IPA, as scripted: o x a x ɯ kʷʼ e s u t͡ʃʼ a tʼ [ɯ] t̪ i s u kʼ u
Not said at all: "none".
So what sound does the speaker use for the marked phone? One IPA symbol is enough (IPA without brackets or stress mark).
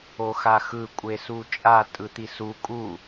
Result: ɯ